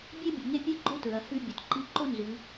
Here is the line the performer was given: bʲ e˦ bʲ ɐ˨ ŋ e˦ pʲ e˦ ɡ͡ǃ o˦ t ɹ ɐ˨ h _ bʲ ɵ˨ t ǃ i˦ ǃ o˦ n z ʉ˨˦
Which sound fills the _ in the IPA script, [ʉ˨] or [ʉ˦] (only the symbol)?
ʉ˦